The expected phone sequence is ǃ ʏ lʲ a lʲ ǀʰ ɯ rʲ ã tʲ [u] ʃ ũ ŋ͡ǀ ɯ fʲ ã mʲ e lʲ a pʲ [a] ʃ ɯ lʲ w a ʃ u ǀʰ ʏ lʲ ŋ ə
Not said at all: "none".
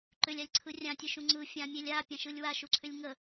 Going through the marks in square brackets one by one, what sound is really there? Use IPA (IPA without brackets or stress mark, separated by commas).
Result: ɯ, ã